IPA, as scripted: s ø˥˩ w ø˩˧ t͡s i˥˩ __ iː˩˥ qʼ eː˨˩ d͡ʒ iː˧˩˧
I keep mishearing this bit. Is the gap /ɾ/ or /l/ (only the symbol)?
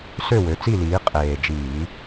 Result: l